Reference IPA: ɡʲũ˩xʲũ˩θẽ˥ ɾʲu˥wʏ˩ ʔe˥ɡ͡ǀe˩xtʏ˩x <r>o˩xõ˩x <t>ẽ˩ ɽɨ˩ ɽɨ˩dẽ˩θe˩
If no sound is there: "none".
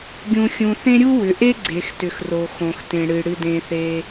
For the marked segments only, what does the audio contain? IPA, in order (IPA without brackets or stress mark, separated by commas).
r, t